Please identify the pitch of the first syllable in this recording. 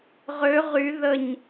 rising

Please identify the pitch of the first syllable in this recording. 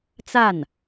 falling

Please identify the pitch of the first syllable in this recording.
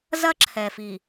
high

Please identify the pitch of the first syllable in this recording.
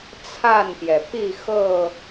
falling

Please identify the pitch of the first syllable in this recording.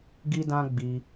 high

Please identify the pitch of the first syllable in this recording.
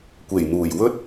low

